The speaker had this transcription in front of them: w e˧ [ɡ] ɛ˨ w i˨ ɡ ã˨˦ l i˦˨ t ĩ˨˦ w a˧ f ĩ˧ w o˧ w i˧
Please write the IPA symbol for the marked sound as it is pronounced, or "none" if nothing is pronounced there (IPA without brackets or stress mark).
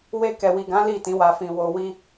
k